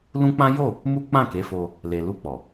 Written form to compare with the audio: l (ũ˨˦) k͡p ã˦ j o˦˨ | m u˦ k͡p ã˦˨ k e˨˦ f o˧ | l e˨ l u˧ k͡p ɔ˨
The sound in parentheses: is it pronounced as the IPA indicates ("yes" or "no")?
no